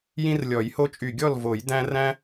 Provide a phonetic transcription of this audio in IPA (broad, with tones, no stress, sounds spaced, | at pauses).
j ĩ˦ r lʲ ɔ˨˩˦ j h o˦ t͡ʃʼ y˧˩ ɡʲ ɔ˥˨ l v o˨˩˦ j d æ̃˦ r æ̃˦